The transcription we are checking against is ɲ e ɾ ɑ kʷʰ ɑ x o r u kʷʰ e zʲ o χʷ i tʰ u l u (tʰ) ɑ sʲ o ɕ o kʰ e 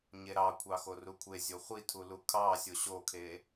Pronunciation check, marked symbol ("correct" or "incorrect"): incorrect